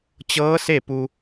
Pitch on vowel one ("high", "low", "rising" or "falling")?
rising